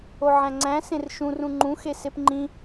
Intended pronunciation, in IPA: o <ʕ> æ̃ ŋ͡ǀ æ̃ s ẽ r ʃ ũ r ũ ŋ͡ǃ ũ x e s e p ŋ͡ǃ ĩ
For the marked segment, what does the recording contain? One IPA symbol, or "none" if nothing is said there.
ʕ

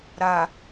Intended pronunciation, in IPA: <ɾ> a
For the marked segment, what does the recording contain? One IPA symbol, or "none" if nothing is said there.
ɾ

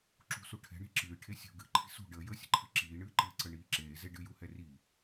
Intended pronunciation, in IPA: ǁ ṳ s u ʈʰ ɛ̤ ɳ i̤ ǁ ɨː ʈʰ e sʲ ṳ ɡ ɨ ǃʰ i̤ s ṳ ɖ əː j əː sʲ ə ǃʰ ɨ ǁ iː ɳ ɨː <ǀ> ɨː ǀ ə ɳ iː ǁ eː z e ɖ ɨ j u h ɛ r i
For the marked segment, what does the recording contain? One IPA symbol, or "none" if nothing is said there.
ǃ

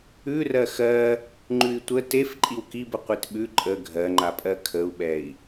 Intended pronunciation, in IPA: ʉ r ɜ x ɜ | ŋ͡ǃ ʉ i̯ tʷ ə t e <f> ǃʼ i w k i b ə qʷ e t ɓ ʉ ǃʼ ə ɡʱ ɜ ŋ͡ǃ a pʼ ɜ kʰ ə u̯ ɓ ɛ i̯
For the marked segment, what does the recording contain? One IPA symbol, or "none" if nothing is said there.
f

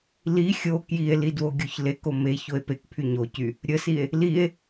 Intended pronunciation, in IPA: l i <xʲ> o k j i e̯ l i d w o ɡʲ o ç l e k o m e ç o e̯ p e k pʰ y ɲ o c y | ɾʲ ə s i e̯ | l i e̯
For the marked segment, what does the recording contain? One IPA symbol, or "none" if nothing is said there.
xʲ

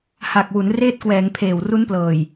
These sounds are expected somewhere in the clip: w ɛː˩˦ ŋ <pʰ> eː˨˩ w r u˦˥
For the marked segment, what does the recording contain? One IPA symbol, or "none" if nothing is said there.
pʰ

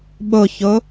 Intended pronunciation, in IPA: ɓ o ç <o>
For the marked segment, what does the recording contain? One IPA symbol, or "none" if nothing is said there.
o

